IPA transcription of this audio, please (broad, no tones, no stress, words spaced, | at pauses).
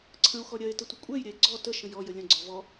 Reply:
ǀʰə̃o̯xɔ ɾʲɜe̯tə tʷəkʷʼɛjɾʲɛe̯ ɡ͡ǀɔ tə ʃə̃jɔjə lʲə̃ɡ͡ǀɔ vɔ